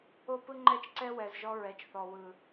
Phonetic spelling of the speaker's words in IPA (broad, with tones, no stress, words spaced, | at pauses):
o˦pɯ˦ŋ͡ǃɛ˦t͡ʃ ǀɛ˦wɛ˨z ʒɔ˧ɹɛ˨t͡ʃθɔ˨ wɯ˨